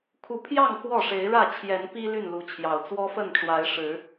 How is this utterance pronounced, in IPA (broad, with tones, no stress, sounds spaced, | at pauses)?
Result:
kʰ u˨˦ pʰ j ɑ˥˨ ŋ x w ɔ˥˨ ʂ e˨˦ ɪ̯ ɻ ä˥˨ t͡ɕʰ j ɛ˨˦ n p i˦ l y˥˨ n l u˨˦ t͡ɕʰ j ɑ˨˩ ʊ̯ t͡s w ɔ˦ f ə˥˨ n ʈ͡ʂ w a˨˦ ɪ̯ ʂ ɻ̩˨˦